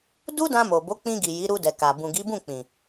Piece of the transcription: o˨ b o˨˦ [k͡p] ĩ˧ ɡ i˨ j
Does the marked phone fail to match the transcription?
no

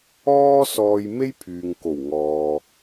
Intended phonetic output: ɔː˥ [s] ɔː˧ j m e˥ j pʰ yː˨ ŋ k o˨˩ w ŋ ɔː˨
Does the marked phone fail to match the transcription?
no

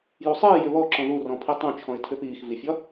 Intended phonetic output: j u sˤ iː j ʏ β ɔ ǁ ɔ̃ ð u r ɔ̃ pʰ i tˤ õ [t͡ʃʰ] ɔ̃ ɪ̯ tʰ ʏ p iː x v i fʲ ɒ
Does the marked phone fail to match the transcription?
no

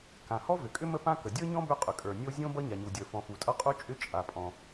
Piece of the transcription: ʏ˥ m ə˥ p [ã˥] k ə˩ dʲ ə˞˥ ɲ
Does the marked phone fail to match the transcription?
no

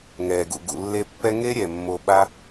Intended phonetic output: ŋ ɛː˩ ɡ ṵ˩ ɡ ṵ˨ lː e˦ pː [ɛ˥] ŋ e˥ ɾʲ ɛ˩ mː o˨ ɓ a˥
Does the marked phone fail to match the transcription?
no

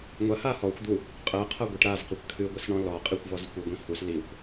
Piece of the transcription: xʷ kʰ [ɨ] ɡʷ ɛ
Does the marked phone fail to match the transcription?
no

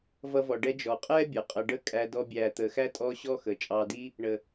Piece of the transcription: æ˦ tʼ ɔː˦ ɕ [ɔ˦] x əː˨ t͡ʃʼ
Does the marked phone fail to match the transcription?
no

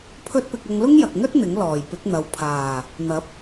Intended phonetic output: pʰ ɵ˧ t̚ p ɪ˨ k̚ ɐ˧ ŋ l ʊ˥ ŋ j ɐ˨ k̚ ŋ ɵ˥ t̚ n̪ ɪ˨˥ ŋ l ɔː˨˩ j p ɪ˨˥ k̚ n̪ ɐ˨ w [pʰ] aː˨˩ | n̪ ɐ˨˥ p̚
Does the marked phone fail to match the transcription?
no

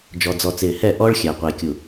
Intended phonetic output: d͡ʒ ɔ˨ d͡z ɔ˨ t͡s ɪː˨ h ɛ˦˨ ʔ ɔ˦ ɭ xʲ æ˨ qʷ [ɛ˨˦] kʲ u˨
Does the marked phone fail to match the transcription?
yes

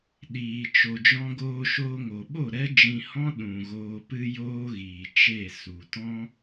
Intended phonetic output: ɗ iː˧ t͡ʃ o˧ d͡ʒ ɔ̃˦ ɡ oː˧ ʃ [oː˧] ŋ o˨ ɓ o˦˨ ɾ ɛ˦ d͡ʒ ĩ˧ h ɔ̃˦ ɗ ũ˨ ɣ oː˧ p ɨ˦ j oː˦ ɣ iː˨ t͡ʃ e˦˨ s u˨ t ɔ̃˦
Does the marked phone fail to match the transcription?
no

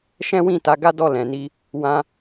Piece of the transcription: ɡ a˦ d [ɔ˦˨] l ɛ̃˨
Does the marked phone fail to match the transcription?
no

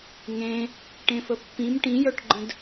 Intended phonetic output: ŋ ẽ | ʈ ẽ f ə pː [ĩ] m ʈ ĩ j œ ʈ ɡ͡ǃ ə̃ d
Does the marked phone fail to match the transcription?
no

